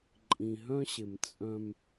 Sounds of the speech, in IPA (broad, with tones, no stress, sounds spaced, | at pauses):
ǃʼ ĩ˨ ɦ œ̃˦ ɕ ɪ˨ m t͡sʼ œ̃˦ m